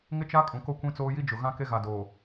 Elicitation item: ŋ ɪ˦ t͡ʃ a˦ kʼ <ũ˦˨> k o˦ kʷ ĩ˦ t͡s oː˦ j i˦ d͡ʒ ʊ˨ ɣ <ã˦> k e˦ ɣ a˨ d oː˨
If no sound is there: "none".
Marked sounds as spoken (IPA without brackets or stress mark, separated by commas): ũ˨, ã˦